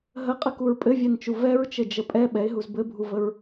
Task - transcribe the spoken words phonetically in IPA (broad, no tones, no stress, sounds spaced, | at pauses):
ɦ ə qʼ ə k u ɹ pʼ ɘ vʲ ɛ n t͡ʃ u v ɛ ɹ t͡ʃ ɘ d͡ʒ ə pʼ ɛ ɓ ɛ ɪ̯ ɦ u z b ɘ bʱ u v ə ɹ